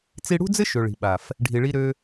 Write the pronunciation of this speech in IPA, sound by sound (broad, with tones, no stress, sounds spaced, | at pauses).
t͡s i˧ ɽ ṳ˦ d͡z ɘ˦ ʃ ø˨ ɭ i̤˨ ɓ a˨ f | ɖʱ i˨ ɭ i˧ ɾ ø˧